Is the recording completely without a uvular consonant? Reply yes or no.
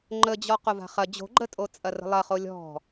no